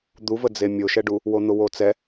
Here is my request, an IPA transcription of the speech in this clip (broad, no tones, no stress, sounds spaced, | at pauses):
d̪ u v ə d͡z e mʲ o ʃ ɛ ɖ u | w o n̪ ʊ w o t͡s ɛ